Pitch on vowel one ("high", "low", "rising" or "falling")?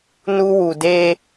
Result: high